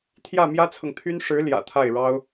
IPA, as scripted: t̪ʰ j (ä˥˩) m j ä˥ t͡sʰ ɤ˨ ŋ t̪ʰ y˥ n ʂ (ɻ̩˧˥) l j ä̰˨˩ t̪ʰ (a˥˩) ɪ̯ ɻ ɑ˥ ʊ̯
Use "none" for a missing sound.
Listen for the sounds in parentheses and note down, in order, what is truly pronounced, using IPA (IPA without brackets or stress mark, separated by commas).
ä˥˩, ɻ̩˧˥, a˥˩